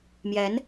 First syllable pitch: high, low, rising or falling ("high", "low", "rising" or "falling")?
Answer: rising